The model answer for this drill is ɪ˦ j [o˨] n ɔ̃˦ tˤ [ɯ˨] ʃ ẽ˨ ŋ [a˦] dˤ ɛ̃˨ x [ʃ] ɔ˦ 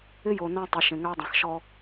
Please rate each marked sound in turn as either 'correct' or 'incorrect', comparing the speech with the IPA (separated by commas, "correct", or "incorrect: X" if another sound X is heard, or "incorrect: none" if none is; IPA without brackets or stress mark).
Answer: correct, correct, correct, correct